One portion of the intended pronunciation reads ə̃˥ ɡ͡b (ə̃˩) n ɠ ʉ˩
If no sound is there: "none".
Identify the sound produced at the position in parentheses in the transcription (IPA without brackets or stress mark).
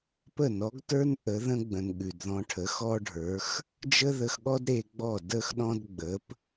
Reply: ə̃˩